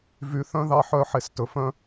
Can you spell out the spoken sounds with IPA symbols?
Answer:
v y˨ θ œ̃˦ ð ɑ˦ ħ œ˦˨ ħ e˧ s t ɵ˨ f œ̃˦

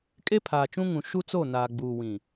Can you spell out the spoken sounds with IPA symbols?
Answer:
kʼ e˦ pʰ aː˨ t͡ʃ ũ˦ ŋ ũ˨ ʃ u˦ t͡s o˦˨ n aː˨ ɡ͡b uː˨ w ĩ˨

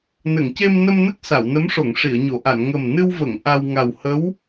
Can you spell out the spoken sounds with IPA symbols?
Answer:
n ə˨˩˨ ŋ c e˧ m n ə˧ m n ə˦˥ k̚ s a˨˩˨ w n ə˧˥ m ʂ o˨˩˨ ŋ ʂ i˨˩˨ ə̯ ɲ o˨˩˨ ʔ a˨˩˨ n ŋ ə˨˩ m n ɨ˧ w v ə˨˩˨ ŋ ʔ a˧ w ŋ a˨˩ w h ə˧˥ w

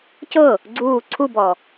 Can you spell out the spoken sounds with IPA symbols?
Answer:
c ɤ | ɡ͡ǀ uː ǀʰ u b ɔ

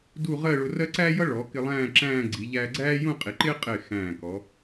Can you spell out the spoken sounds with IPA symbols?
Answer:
d u˥˧ ʁ ɜ˥˧ ɭ ʊ˧ r ɜ˥ ǀ æ˥ j ʌ˥ ɭ ɔ˩˧ k ɪ˧ lˠ æ̃ː˥˧ ǁ æ̃ː˥˧ ɡ͡ǀ i˩˧ ʎ æː˧ ɡ͡ǀ æː˥ j ũ˥˧ qʼ i˩˧ ǃ ɪː˥ qʼ ɪː˧˩ x æ̃ː˧˩ k ɔ˩˧

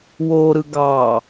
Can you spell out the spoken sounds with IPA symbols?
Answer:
w o ɾ ɯ ɡ ɑ

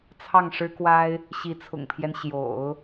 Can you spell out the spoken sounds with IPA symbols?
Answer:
t͡sʰ ɑ˥˩ ŋ ʂ ɻ̩˥ k w a˥ ɪ̯ | ɕ i˧˥ t͡sʰ ʊ̰˨˩ ŋ pʰ j ɛ˦ n ɕ j o̰˨˩˦ ʊ̯

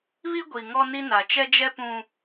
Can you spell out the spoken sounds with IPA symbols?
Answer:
β i˦ ɡʷ i˨ ŋ ɔ˦ n i˦ n a˨ t͡ʃ ɛ˦ d͡ʒ ɛ˦ p ũ˦

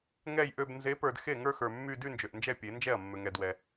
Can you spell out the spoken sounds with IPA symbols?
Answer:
ŋ ɛ˥˧ j ʔ ø˥˧ b n z e˨˥ p ə˞˨ d x e˥˩ ŋ ə˞˥˧ x ə˞˨ mː y˥˧ d y˥˧ n d͡ʒ ø˨ ʔ n d͡ʒ ɛ˥˩ pʲ e˨˩˦ n d͡ʒ ɛ˥˩ ɐ̯ mː ø˨ ŋ ɛ˨ d w ɛ˨

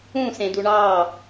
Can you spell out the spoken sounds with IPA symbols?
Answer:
ũ s ẽ d u ɳ ɑː

